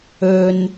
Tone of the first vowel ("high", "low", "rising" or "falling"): low